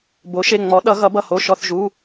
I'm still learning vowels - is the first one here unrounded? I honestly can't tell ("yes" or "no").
no